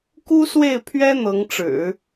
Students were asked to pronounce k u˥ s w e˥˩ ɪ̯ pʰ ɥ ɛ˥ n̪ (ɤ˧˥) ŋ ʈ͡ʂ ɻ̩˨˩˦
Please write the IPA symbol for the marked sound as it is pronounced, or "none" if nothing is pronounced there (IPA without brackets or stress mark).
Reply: ɤ˧˥